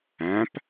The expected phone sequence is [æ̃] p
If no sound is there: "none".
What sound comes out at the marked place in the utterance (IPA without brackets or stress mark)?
æ̃